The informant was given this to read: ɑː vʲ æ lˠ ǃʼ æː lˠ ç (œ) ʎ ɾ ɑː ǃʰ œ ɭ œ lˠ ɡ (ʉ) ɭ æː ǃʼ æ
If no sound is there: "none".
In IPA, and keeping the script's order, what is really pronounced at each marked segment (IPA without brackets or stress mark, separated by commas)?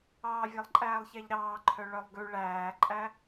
æ, ʉ